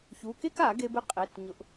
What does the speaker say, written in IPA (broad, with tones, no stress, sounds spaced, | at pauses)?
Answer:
ç u˩˧˩ k e˥ k a˨˩˦ ɡ e˧ b ɪ˥ qʼ e˩˧˩ t ɲ ʊ˨˩˦ ʔ